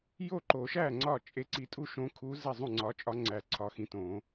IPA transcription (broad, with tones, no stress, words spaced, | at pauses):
jo˥˩ǃo˨˩˦ʃæ˥˩ ŋ͡ǀɒ˥˩t͡ʃʼe˧˥ǀi˧˥ tʼu˥˩ʃõ˧˥kʰu˧˥ ze˥˩zˤũ˥˩ŋ͡ǀɒ˧˥t͡ʃʼɒ˧˥ ŋ͡ǀæ˨˩˦ǀʰɒ˨˩˦ xĩ˨tõ˨˩˦